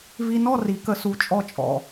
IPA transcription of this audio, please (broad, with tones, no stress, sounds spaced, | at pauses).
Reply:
v i˧ n ɔ˥˧ r i˩˧ k ə˧ s u˧ t͡ʃʼ ɔ˥ t͡ʃʼ ɔ̰˧˩